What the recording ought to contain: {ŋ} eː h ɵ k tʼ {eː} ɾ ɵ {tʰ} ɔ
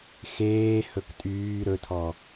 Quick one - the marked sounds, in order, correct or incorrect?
incorrect: x, incorrect: yː, correct

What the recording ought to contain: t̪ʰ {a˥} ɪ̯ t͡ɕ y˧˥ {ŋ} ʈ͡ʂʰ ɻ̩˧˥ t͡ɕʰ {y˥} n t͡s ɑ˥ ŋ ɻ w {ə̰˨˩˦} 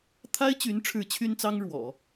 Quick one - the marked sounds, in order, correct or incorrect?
correct, incorrect: n, correct, incorrect: ɔ̰˨˩˦

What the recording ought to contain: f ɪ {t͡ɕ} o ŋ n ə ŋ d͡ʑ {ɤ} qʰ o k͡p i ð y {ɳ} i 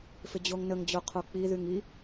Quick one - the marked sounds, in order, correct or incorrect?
incorrect: d͡ʑ, incorrect: o, incorrect: ŋ

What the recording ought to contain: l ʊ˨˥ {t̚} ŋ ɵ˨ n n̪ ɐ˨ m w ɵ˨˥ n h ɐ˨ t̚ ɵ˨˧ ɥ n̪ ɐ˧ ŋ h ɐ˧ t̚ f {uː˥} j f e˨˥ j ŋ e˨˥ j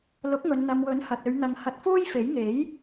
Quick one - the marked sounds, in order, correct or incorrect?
incorrect: k̚, correct

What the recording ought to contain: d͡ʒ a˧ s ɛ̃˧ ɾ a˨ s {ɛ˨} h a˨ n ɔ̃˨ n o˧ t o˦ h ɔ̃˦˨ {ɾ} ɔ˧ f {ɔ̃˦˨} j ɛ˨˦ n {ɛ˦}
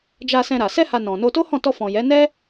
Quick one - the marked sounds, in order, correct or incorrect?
incorrect: ɛ˧, incorrect: t, incorrect: ɔ̃˨, correct

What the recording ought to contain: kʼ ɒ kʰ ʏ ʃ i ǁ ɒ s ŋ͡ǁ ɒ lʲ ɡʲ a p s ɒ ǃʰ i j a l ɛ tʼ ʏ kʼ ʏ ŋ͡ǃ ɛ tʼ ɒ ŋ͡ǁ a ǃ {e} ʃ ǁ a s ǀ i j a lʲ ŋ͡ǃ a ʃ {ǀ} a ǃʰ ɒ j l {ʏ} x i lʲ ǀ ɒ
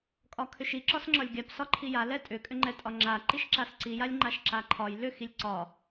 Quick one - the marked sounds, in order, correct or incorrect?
incorrect: i, incorrect: ǁ, correct

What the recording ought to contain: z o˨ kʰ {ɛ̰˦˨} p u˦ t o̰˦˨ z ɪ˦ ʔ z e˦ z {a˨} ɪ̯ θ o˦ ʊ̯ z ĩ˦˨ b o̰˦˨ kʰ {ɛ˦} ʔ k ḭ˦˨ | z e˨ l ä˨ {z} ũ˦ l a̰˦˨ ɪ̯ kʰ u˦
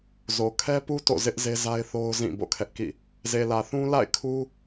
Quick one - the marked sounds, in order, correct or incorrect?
incorrect: ɛ˦, incorrect: a˦, correct, incorrect: θ

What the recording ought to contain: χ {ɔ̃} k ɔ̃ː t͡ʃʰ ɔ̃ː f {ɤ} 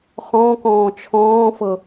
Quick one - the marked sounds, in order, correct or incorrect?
correct, correct

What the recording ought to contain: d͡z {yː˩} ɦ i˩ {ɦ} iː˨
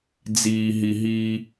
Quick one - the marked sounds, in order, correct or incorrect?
incorrect: iː˩, correct

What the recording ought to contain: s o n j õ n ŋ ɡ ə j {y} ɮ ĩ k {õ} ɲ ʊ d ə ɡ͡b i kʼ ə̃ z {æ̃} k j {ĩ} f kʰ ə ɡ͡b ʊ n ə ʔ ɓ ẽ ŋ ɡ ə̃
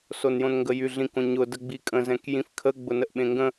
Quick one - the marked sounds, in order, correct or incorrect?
correct, correct, incorrect: ɛ̃, correct

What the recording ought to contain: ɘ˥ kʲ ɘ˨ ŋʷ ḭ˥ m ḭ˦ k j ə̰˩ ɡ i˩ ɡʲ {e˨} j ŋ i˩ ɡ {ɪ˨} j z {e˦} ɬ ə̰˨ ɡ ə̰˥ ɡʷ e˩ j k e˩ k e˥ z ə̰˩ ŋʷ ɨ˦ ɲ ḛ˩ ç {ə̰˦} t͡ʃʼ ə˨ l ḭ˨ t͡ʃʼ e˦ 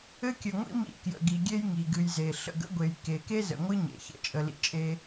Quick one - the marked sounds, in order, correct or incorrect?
incorrect: e˦, incorrect: ɨ˨, incorrect: e˩, incorrect: ə̰˥

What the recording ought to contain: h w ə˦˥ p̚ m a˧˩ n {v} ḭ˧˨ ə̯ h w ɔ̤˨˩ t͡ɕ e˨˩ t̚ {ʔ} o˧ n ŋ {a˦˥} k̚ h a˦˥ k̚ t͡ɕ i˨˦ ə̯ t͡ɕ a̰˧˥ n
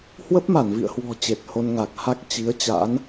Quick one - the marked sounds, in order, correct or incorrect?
correct, incorrect: h, incorrect: a˨˩

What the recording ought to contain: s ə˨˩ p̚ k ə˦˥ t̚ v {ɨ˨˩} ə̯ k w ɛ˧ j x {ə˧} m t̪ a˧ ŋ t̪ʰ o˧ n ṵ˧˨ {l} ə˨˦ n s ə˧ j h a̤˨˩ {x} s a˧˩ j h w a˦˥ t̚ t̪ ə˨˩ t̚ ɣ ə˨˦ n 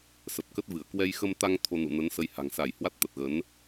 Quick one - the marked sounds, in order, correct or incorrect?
incorrect: ɨ˧˩, correct, incorrect: n, incorrect: ŋ

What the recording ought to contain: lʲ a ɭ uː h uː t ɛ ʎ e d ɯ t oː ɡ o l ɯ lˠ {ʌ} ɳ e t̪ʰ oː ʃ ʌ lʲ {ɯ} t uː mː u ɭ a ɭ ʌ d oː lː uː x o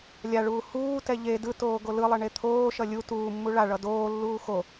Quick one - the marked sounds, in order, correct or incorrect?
correct, incorrect: u

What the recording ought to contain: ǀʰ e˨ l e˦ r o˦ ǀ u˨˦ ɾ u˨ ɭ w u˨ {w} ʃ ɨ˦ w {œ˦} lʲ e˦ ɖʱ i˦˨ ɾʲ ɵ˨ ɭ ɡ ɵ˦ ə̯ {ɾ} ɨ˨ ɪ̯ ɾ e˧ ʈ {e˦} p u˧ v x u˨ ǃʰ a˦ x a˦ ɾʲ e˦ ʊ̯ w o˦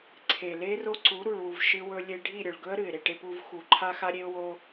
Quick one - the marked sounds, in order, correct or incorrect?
incorrect: v, incorrect: ɵ˦, correct, correct

